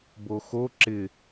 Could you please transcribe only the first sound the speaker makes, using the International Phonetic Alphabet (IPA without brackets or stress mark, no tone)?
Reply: b